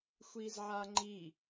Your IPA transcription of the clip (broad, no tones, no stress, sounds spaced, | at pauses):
xʷ i z ʕ a ŋ͡ǃ i